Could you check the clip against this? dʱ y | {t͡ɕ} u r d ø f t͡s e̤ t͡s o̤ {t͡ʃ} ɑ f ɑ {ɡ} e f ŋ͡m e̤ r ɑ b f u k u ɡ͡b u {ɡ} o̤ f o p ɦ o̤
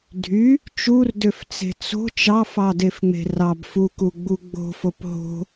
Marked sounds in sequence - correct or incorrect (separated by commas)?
incorrect, correct, incorrect, incorrect